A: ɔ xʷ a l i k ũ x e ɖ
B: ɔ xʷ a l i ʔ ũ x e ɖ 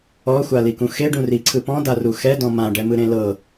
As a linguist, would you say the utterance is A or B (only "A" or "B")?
A